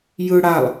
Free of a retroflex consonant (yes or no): no